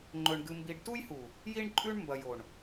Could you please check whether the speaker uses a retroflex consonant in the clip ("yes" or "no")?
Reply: yes